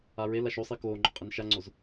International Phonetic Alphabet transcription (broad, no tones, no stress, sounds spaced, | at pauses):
a ɹ e l a ʃ o sˤ i k oː ŋ͡ǃ ʊ qʼ i n ʃ a ŋ͡ǀ o z